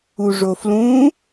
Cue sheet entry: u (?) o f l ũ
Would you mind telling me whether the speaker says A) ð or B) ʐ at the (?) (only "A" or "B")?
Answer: B